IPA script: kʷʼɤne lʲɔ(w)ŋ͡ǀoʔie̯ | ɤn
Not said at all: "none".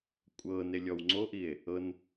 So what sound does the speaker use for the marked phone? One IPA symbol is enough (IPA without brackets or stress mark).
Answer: w